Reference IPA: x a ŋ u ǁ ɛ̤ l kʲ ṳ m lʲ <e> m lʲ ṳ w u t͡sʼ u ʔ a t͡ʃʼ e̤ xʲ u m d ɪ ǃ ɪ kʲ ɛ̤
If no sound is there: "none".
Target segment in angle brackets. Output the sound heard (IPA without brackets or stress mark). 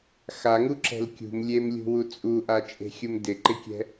e